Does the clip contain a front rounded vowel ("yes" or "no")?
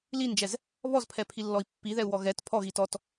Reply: no